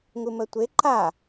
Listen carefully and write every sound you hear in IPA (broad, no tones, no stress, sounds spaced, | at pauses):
ŋ u m ə tʷ e ǃ a